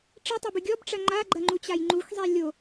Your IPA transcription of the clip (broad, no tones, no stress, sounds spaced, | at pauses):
ʈ͡ʂ ɘ tˤ ɐ b ɨ ɡʲ ɔ b ʈ͡ʂ ɐ ŋ͡ǃ a ɡ͡ǃ ɐ ŋ͡ǃ u t͡ɕ a j ŋ͡ǃ u x zˤ i lʲ o